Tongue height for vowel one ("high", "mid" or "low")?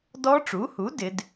mid